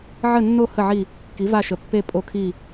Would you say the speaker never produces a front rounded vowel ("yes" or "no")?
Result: yes